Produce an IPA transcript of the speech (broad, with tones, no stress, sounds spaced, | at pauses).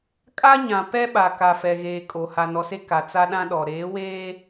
kʼ a˦ ɲ ã˨ p ɛ˦ ɓ a˨ k a˨ f ɛ˨ ɣ eː˨ kʼ o˨ h a˨ n ɔ˨ s e˦ k a˨ t͡s a˦ ɗ ã˦ ɗ ɔ˨ ɾ eː˨˦ w eː˦